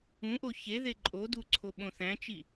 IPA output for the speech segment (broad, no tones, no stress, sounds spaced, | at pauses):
ũ ʔ o ç e ð e ǃʼ o d u ǀʰ o ɓ õ θ æ̃ t͡ʃ i